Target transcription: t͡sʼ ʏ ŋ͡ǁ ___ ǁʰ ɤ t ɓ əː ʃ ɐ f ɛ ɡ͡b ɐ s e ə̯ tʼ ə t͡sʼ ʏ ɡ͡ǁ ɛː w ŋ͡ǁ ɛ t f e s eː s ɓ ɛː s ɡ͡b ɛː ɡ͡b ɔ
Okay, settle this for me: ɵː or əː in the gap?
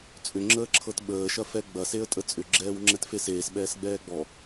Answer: əː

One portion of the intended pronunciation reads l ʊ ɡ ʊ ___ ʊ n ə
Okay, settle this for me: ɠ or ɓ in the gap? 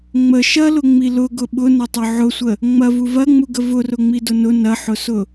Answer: ɓ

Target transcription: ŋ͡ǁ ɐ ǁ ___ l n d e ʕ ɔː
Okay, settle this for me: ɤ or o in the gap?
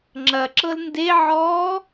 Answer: ɤ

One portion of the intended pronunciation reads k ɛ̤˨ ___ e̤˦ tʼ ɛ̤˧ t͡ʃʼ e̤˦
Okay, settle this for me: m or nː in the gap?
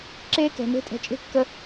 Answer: m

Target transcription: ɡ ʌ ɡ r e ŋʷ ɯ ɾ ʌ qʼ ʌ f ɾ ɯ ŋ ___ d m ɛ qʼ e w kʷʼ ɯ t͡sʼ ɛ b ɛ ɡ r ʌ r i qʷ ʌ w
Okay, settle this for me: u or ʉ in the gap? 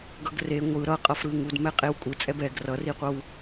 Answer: u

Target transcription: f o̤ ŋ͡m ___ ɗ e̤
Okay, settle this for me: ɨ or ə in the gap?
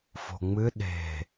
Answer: ɨ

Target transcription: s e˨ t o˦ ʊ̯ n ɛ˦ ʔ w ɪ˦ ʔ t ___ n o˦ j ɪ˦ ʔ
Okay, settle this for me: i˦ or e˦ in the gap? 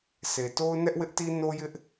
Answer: i˦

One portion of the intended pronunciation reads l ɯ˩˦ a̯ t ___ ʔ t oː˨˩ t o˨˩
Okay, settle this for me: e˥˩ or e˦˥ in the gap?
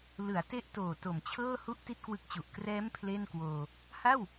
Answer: e˦˥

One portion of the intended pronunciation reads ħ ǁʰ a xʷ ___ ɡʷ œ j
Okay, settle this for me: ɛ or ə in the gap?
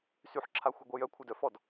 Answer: ɛ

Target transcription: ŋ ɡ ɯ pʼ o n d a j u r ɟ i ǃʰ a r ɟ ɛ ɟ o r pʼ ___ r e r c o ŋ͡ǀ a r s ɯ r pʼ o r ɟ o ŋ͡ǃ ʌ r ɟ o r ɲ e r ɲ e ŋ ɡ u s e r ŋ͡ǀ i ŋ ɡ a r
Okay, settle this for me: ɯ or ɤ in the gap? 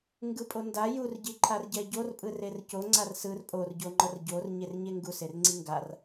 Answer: ɯ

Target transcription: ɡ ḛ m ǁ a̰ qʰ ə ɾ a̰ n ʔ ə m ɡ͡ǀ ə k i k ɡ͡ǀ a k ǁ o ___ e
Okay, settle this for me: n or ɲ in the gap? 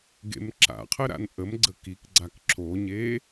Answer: ɲ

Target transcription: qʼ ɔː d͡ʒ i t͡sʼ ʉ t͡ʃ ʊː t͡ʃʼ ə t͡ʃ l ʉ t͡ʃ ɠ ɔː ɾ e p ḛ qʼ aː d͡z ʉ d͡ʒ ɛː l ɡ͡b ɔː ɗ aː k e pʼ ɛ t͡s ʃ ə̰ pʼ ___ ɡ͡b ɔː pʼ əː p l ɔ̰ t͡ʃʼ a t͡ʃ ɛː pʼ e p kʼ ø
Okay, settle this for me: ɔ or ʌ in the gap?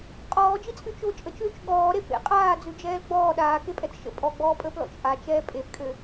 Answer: ɔ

